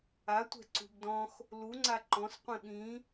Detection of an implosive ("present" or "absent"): present